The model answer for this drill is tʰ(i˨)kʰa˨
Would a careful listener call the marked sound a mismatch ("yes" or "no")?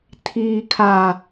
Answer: yes